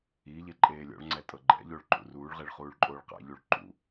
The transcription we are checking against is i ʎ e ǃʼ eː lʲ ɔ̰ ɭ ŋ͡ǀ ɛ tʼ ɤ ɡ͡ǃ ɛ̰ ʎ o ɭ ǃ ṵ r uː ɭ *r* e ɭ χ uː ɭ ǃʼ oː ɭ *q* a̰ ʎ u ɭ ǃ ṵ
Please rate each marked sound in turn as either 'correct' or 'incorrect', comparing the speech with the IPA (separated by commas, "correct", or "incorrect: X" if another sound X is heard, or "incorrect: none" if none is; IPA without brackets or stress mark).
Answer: incorrect: ʁ, correct